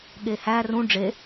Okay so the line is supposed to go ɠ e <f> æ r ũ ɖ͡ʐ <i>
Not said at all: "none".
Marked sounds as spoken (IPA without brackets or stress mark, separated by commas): h, e